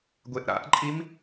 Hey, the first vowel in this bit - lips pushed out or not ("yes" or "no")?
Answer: no